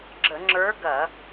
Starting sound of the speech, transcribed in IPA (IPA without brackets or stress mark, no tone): ɡ͡ǁ